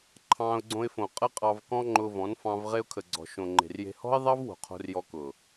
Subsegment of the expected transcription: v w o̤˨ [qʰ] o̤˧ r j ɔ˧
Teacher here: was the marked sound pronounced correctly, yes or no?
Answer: yes